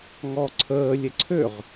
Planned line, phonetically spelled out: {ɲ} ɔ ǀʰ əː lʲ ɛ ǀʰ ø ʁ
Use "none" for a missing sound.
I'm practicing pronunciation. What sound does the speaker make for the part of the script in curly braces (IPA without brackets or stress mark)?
ŋ